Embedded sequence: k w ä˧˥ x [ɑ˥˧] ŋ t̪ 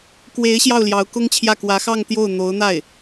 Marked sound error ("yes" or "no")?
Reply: no